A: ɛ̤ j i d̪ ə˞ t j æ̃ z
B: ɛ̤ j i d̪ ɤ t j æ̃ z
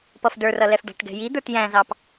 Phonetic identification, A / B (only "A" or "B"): A